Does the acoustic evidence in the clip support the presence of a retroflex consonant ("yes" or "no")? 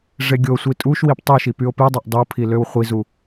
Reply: yes